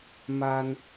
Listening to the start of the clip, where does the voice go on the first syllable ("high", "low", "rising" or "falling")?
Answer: high